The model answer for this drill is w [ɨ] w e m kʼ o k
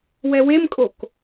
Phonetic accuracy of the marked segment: incorrect: ɛ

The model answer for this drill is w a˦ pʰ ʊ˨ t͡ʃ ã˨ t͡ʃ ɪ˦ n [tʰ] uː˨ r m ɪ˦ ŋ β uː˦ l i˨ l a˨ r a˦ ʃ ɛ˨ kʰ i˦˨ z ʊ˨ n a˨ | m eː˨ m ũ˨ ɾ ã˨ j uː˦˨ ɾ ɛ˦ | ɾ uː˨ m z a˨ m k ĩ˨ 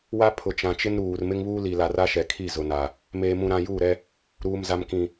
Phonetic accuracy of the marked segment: incorrect: ɾ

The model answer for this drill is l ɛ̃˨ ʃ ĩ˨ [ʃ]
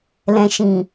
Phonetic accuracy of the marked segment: incorrect: none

